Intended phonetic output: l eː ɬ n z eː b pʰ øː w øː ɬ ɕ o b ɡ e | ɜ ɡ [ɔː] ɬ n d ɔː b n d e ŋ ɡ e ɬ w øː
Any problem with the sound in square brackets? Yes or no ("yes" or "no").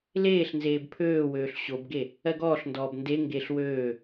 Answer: no